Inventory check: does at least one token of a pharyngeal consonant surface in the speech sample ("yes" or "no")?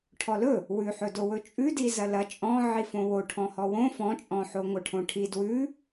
yes